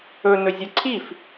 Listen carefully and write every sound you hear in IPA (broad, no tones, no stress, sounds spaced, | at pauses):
ɵ n ɵ zʲ o ǀʰ i f